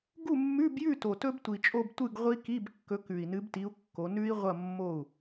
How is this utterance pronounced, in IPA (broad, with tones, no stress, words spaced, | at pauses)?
ɡu˥˨mːʉ˧˥˧bjʉ˥˨ to˨˩tɵ˦˥btʷi˨˩t͡ʃʼo˥˨b tʷɨ˥˨ɡʁʷi˦˥ki˧˥˧b kːɵ˨˦kʉ˨˩i̯nɨ˨˦bti˨˦u̯ kːo˨˦ nʉ˦˥i̯ʁʷɐ˥˨ mːo˥˨u̯